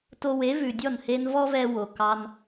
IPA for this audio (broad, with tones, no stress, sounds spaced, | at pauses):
t o˧ w e˨˦ v ʉ˨ dʲ ɔ˦˨ n h e˧ n v ɔ˦ v ɛ˧ w o˨ k ɑ˧ n